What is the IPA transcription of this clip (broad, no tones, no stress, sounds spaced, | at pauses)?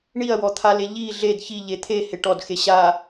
ɳ i ɐ̯ w ɔ t̪ʰ a l e ʎ i ɮ e d ç i ʎ e t̪ʰ e h e ʈ ɔ d x e ɕ a